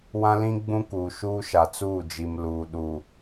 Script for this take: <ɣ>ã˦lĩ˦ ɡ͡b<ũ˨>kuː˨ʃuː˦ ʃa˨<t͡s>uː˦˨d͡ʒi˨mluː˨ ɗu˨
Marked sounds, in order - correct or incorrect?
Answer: incorrect: w, incorrect: ũ˦, correct

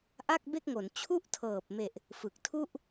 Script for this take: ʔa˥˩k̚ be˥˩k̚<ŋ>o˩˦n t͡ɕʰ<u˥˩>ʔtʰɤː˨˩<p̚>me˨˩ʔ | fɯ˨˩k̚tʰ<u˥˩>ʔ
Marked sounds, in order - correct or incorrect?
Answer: correct, correct, correct, correct

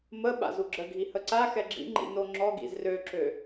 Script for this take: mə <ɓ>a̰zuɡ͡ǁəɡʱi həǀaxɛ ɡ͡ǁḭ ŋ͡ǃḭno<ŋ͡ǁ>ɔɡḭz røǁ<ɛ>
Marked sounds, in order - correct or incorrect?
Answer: correct, correct, incorrect: ø

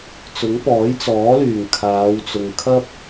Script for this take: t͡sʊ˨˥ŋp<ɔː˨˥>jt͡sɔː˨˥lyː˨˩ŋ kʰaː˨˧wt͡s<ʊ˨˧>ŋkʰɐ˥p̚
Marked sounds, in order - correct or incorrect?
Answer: correct, incorrect: ʊ˨

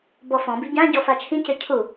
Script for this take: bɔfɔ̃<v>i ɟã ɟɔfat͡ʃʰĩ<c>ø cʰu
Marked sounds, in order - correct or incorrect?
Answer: incorrect: b, correct

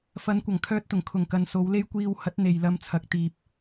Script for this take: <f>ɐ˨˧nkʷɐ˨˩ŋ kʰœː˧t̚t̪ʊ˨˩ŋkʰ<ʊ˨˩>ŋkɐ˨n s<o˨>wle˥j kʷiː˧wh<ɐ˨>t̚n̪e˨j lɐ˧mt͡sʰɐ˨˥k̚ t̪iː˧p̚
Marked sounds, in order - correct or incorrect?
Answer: correct, correct, incorrect: o˨˧, incorrect: ɐ˨˥

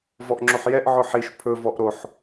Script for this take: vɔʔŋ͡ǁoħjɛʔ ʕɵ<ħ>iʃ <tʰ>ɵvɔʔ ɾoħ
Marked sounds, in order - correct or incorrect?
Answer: correct, incorrect: pʰ

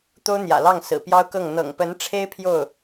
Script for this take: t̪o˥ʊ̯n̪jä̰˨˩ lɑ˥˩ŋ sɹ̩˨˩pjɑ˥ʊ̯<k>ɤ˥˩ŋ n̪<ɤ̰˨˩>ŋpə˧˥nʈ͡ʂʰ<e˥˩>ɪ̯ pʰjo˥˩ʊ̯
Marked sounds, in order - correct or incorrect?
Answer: correct, correct, incorrect: e˥

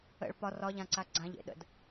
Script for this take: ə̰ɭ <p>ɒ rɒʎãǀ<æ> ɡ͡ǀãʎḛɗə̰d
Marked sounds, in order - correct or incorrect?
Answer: correct, incorrect: a

